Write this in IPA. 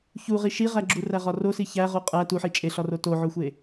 ç u ʁ i ʃ i ʁ æ ɡ͡ǁ u r æ ʁ ɒ r o s i ç æ ʁ o qʼ æ t u ħ i t͡ʃʼ e ɬ ɒ r o t o ʕ o xʷ e

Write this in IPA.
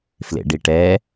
f l ḛ ɖ i ʈ ɛ

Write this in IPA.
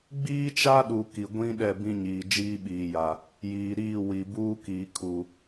ɡ͡b iː˦ t͡ʃ a˦ ɗ u˨ k i˨ ɡʷ ĩ˦ ɗ ɛ˦˨ b ĩ˦ ɲ iː˨ d͡ʒ iː˦ ɓ iː˨ j a˨ | j iː˨ ɾ iː˦˨ w i˨ b uː˦ k iː˨ kʰ u˨

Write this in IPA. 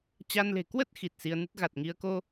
t͡ɕ a˧ n l e̤˨˩ k w ə˦˥ t̚ x i˨˩ t̚ s i˧ ə̯ n ɨ˦˥ t̚ ɣ a˨˩ t̚ ŋ i˧ ə̯ k o˧

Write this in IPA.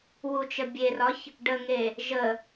w u t͡ʃ ə bʲ e r ɒ ç | ɖ ə ŋ e | ʒ ə

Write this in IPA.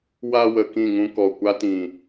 w a˧ w ə˨ k ĩ˦˨ ŋ ũ˧ k ɔ˨ kʷ a˦ t ĩ˨

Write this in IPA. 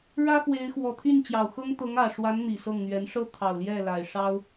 ɻ ä˥ x w e˧˥ ɪ̯ x w ɔ˨˩ t̪ʰ y˥˩ n t͡ɕ j ɑ˨˩ ʊ̯ x ɤ˥ ŋ t̪ ɤ˧˥ ŋ ä˨˩ ʂ w a˧˥ n n̪ i˨˩ s ɤ˥˩ ŋ n̪ ɥ ɛ˧˥ n ʂ ɤ˥ t̪ʰ ɑ˨˩ ʊ̯ l j ɛ˥˩ l a˨˩ ɪ̯ ʂ ɑ˥ ʊ̯

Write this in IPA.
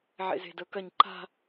ʕ ḛ z e̤ d ɤ k ɐ ɲ ǃ a̤

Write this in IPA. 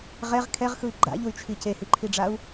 ʁ ɛ ʁ kʰ ɛ ʁ x ɯ i̯ ɡ͡ǃ a̰ ʎ u y̯ t͡ʃʰ i c e h i ǃʰ i ɖ͡ʐ a u̯

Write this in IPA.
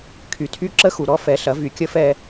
kʰ y˨˩ tʰ y˥ ǁ ə˥ x u˨˩ ɾ ɔ˥ f ɛ˩˥ ɬ ɐ˩˥ v y˨˩ kʲ ə˥ f ɛ˥˧

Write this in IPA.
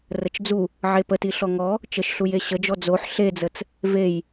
r ə t͡ʃ d͡z u | ʕ e p ə t i ɬ ɔ ŋ ɔ | t͡ʃ ə ʃ ɬ u j e ɕ ə d͡ʒ ɔ d͡z o ħ ɬ e d͡z ə t͡s | v e j

